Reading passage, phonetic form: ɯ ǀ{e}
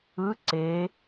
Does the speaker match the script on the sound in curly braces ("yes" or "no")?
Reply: yes